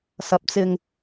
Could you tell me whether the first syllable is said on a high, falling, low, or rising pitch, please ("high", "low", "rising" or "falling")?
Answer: rising